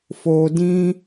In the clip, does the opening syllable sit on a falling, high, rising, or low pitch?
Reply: low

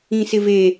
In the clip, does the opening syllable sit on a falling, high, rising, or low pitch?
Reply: low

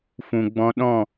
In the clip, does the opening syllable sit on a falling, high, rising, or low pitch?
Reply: low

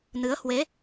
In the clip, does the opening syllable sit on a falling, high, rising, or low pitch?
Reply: rising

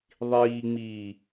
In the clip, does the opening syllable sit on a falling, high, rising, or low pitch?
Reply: low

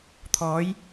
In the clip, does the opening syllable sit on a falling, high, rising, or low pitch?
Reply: rising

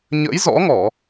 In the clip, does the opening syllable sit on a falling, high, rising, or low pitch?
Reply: rising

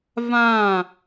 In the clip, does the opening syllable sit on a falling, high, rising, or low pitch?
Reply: falling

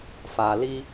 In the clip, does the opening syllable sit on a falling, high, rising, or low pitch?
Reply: low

